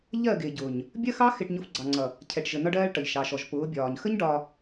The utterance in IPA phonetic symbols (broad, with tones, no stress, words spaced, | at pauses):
ʎɜ˦˨ɡɪː˨ɟʊː˨ɲ | bʲɜ˦xɑ˦ xɪ˧ʈɲʊ˧f ɡ͡ǀɑ˨ŋ͡ǀʌ˨ | cʰɛ˨ʈʒə˨nɒ˧ɖɜː˧ɭ ʈʌ˨ʎʃɑ˨ʃɔ˨ʒ pʊː˨˦bʲɒː˨ɲ xə˦ɲ ɖɒ˧